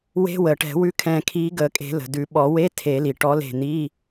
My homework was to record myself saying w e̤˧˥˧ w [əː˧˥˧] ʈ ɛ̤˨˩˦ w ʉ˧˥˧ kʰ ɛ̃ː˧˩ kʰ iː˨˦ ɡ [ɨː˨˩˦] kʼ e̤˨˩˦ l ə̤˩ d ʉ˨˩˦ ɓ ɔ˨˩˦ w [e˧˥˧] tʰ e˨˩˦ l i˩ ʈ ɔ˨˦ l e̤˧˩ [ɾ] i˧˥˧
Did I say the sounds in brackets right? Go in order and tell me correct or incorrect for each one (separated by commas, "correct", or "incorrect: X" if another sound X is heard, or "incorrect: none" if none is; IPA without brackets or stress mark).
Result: incorrect: əː˩, incorrect: əː˨˩˦, correct, incorrect: n̪